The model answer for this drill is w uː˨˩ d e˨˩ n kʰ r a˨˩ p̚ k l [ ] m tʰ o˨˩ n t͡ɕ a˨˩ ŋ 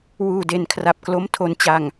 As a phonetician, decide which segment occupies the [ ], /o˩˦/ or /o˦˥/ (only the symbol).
o˦˥